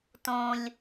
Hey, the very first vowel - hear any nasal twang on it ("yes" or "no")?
yes